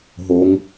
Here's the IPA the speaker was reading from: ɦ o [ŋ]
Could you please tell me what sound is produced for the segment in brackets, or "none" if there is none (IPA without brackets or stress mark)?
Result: ŋ